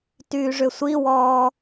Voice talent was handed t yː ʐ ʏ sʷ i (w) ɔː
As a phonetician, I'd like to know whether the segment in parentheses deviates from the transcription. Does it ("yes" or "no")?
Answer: no